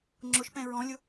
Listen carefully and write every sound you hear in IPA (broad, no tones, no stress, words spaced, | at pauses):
ŋ͡ǁʊʃpɛ̃ ɹɔ̃lʲʊ